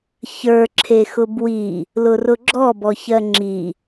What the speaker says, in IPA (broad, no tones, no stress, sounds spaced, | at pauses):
ç ə˞ ǁʰ e x ʊ b w i | l ʊ r ʊ ɡ͡ǁ ɔ b ɔ ç ɜ ŋ͡ǁ i